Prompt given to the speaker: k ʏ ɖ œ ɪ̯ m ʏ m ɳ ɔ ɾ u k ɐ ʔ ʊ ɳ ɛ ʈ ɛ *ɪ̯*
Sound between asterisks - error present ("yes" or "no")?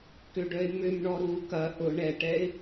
no